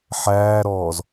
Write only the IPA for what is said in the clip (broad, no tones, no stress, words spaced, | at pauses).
ħæːɾɔːz